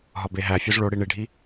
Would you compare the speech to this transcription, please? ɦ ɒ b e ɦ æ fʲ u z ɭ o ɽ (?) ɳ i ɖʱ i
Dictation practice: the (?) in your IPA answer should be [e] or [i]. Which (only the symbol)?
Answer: i